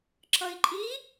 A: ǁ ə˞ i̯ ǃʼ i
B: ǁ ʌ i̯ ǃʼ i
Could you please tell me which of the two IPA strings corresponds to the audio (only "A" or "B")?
B